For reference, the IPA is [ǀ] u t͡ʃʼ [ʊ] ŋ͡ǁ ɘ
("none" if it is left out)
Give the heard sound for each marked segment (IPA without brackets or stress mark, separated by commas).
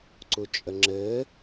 ǀ, ə